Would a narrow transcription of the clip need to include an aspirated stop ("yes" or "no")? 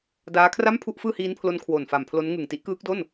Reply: yes